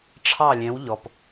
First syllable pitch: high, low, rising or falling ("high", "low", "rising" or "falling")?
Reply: falling